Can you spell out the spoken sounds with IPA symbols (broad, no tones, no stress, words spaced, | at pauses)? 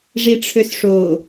ʐiʈ͡ʂʰøsʂo